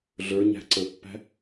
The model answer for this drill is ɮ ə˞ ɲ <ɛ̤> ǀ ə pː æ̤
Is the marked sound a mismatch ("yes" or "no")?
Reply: yes